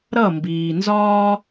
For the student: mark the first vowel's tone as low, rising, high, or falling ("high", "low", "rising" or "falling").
falling